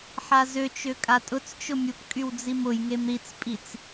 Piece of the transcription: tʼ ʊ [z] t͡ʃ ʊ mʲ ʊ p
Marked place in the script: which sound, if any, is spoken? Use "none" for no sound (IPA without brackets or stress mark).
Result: t͡s